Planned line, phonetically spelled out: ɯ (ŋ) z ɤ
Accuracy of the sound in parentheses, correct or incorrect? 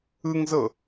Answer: correct